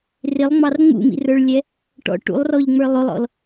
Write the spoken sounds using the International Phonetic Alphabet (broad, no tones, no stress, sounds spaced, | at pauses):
r ɪ lˠ ŋ͡m ɑ r ŋ͡m ṵ m ḭ r ə˞ ɭ lʲ ɛ | ʈ ɔ̰ ʈ ṵ lˠ r ɔ ʎ ŋ͡m ə˞ lˠ ʊ lˠ ɔ̰ l